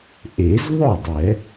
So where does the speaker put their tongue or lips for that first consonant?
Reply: throat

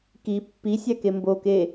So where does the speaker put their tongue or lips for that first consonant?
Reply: velum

